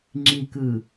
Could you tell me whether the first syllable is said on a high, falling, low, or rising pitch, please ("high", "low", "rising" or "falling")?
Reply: low